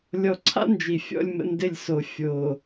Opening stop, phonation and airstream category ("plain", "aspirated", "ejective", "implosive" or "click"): click